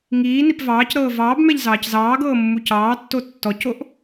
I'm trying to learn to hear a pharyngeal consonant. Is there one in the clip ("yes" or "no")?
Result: no